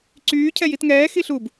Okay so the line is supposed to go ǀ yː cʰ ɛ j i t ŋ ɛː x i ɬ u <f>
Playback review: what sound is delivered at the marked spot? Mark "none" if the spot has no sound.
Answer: b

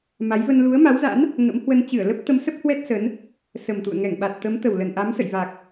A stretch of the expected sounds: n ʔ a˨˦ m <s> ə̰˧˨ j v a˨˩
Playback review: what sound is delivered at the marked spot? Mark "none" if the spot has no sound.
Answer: s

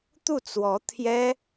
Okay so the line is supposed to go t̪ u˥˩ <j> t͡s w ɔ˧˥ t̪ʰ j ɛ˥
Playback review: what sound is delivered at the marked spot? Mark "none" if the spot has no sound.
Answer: none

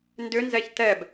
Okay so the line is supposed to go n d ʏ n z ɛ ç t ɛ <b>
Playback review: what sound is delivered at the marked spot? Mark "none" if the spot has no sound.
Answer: b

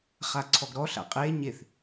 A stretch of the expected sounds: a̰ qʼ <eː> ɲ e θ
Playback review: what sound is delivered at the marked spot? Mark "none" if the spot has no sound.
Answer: eː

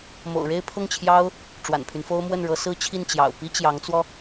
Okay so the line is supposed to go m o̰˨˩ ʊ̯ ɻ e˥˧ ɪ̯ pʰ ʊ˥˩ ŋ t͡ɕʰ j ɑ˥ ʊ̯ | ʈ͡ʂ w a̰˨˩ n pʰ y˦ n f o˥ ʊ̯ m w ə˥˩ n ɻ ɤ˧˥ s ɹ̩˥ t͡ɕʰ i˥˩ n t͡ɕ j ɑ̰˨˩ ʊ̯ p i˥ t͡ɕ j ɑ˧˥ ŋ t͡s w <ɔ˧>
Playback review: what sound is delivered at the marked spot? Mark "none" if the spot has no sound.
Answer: ɔ˧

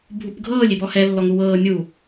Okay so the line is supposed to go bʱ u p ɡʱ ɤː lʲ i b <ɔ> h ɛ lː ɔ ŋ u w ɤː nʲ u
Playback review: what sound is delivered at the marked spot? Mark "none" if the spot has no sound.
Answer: ɔ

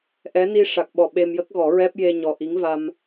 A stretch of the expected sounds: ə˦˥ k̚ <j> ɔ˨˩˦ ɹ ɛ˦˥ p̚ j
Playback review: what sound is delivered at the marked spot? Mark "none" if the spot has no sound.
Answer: ɣ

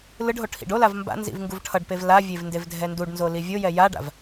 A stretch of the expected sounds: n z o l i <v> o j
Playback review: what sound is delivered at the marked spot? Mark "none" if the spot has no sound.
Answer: vʲ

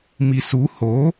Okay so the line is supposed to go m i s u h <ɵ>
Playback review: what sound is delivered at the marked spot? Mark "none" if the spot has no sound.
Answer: o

